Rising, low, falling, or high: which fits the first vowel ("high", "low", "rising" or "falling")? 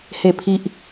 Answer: low